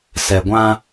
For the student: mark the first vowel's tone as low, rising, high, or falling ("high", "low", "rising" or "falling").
low